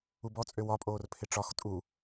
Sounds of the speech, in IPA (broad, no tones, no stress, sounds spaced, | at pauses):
u b ɔ t͡sʼ ø w ɒ pʼ oː r pʰ ɪ ʈ͡ʂ ɒ x tʼ u